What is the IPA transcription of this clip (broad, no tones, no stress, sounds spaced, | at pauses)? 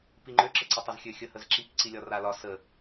p i ŋ͡ǃ ø ǁ ə ǀ ə tˤ a z xʲ ø xʲ ə h ə z ǁ i k ǀ i lʲ ɒ r a l ɒ s ə